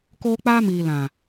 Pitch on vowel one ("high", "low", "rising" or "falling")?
high